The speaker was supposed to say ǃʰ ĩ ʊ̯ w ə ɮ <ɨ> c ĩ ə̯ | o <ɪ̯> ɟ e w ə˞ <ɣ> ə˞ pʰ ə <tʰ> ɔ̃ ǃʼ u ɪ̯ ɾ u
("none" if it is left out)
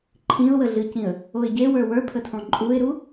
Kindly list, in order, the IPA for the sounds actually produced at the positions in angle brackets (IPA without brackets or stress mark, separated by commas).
ɨ, ɪ̯, w, tʰ